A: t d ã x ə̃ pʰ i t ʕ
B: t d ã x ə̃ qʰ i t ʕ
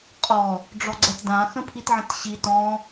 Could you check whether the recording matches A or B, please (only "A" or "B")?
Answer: A